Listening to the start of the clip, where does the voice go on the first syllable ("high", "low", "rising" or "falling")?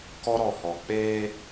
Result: high